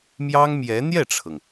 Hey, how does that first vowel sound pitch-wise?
high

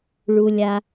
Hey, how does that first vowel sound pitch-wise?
low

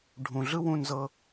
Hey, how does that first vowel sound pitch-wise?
low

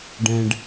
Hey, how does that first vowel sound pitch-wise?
low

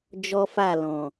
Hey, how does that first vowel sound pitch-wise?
high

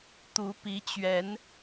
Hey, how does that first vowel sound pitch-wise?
rising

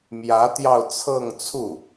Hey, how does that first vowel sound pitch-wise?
rising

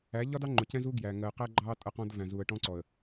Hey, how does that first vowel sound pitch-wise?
rising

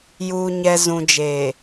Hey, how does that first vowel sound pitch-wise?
low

